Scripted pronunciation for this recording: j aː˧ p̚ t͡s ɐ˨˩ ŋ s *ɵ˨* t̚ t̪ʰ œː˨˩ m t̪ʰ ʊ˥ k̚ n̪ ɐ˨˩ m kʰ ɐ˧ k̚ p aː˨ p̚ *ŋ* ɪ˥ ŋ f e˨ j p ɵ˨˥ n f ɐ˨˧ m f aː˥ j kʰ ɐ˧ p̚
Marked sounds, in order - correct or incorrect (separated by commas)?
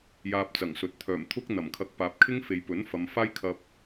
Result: correct, incorrect